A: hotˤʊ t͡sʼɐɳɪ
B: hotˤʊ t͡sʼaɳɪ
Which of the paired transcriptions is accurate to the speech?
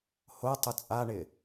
B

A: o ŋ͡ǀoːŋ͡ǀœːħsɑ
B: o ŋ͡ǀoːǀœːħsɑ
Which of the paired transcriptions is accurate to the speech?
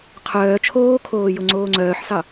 A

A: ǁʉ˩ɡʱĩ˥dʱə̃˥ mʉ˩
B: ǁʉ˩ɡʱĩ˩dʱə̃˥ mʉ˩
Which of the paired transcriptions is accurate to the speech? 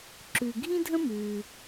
A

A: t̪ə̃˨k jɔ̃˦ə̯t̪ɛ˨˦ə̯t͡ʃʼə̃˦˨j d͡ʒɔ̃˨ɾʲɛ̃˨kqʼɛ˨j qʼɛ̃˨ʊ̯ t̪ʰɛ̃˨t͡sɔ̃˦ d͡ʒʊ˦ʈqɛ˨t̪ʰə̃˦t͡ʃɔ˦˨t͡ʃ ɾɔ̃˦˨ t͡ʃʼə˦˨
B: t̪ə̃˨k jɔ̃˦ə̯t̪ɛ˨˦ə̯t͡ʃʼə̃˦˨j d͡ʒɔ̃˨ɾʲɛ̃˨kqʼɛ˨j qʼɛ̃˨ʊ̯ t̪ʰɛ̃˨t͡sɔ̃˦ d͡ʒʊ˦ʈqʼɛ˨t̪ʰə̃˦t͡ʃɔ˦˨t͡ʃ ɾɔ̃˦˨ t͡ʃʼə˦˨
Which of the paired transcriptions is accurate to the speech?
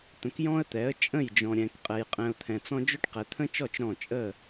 A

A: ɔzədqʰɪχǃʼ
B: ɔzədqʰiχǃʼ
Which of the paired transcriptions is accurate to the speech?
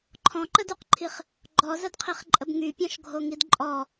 B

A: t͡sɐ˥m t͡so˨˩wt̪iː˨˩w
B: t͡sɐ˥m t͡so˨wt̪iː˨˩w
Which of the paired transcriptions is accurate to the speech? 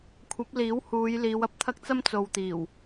B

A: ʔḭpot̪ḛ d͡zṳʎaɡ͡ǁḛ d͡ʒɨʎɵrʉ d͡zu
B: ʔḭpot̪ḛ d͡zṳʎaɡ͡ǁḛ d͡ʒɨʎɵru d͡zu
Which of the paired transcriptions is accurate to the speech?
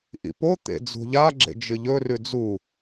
A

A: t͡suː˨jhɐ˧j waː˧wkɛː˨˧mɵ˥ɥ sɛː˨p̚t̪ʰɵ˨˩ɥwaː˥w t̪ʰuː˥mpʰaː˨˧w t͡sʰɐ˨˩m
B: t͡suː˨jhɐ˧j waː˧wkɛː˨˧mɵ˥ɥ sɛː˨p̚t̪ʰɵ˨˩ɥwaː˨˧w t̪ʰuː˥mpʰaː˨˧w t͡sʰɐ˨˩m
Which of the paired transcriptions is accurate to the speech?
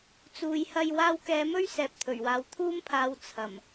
B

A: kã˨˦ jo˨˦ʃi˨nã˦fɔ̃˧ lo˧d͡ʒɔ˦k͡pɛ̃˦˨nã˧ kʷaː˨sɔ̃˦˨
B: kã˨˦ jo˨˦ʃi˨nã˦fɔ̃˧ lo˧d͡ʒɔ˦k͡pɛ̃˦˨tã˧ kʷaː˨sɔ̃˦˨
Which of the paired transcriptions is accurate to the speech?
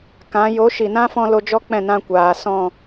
A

